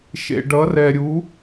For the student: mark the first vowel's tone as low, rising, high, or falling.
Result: low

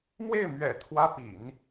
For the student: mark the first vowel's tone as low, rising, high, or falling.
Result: falling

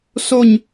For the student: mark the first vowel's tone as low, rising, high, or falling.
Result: falling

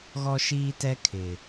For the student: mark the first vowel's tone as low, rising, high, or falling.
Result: high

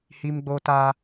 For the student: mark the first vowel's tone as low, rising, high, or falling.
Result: high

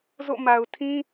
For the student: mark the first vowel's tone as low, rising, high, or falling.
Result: falling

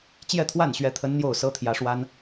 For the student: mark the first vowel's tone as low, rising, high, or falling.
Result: falling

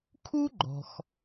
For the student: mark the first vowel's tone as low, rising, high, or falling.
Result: high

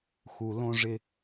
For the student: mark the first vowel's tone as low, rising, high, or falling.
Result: low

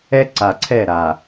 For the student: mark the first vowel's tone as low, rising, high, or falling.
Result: high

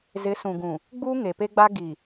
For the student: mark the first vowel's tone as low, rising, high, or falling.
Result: rising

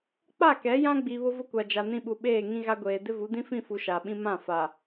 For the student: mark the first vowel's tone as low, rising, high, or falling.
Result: falling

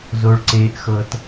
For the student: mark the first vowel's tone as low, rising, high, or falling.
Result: low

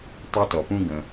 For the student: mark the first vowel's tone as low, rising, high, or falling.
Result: high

